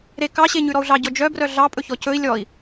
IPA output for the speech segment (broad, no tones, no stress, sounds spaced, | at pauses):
ɾ e k ɑ ɕ e ɲ ʉ ɾ ɔ u̯ ɮ ɑ ɟ ɔ d͡ʒ œ b r œ ɮ ɑ pʼ ɵ ç ɔ c ɵ i̯ lʲ ɔ i̯